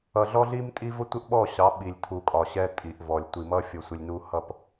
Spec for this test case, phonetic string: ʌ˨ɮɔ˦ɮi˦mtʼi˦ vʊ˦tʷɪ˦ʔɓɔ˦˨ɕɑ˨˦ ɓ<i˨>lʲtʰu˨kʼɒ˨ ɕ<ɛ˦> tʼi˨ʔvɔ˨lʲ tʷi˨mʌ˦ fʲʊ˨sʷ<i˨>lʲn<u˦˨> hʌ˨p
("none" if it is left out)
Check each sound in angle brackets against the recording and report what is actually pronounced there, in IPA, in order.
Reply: i˨, ɛ˦, ɪ˨, u˨

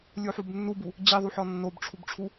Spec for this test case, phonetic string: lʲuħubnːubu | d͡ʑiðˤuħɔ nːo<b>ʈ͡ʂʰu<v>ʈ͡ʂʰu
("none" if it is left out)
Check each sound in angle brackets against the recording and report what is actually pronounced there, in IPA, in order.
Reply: b, b

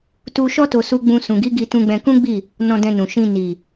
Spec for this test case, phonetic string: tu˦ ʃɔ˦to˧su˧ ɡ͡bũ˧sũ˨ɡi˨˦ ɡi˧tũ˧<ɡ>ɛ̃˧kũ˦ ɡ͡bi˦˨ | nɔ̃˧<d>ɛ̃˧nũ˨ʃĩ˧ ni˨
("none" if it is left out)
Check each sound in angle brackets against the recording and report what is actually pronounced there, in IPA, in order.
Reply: ɡ͡b, d

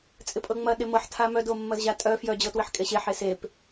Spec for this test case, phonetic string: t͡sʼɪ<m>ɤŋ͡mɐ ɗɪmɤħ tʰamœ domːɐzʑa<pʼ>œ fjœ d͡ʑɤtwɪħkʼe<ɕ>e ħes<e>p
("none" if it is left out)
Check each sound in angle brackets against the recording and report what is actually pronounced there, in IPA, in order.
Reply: pʼ, tʼ, ɕ, e

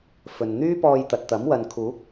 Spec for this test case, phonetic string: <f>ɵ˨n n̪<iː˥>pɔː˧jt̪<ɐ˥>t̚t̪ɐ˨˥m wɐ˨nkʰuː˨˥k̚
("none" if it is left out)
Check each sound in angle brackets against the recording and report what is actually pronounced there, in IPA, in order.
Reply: f, yː˥, ɐ˨

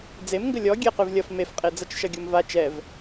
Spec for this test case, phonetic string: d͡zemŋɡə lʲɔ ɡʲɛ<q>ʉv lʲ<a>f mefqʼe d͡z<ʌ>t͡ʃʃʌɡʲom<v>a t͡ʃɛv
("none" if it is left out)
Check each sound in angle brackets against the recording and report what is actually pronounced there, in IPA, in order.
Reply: q, ʌ, ʌ, v

